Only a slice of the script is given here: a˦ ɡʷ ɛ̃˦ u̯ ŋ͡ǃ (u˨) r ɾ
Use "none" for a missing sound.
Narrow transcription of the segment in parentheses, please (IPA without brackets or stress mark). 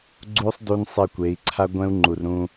u˨